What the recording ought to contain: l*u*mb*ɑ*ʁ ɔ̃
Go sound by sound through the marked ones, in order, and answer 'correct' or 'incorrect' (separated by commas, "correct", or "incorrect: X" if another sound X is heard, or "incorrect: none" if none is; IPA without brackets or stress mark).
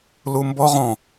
correct, incorrect: ɔ